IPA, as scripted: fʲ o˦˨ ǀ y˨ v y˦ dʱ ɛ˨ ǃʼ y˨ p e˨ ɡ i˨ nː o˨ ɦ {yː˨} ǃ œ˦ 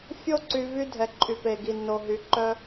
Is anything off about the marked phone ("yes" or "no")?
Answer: yes